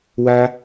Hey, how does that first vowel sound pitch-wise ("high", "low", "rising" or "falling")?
high